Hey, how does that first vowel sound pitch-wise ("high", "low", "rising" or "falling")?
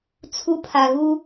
high